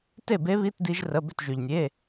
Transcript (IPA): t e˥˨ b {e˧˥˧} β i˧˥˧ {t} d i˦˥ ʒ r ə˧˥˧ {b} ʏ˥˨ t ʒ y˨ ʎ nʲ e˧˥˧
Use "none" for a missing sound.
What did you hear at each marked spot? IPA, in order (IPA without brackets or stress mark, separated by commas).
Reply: e˦˥, t, b